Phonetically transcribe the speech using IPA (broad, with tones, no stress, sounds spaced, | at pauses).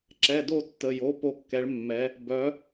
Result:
ǁ ɛ˩˧˩ d o˦˨ tː ə˩˧˩ j o˩˧˩ p o˦˨ kː ɛ˨˥ ɭ mː ɛ˨˥ | b œ˨˥